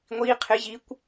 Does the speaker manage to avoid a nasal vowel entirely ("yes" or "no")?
yes